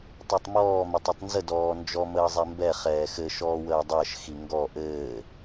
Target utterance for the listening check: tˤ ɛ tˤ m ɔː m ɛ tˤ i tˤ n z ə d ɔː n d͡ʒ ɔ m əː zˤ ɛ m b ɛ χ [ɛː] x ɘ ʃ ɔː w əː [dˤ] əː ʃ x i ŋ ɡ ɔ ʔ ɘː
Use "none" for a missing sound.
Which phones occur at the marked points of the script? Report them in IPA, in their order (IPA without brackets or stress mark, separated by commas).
ɛː, dˤ